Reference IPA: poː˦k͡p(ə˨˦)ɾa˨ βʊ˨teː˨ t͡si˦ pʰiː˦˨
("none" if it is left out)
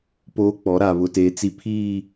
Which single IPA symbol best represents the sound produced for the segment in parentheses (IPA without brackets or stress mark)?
ɔ˨˦